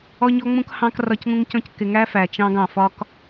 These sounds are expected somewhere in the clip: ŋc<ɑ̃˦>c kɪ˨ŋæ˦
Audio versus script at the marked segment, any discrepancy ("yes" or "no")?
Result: yes